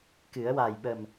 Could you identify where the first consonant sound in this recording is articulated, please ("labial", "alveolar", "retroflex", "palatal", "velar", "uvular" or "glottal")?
velar